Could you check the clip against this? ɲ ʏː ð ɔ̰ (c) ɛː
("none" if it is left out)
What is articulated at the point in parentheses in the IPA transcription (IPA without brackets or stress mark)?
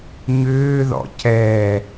c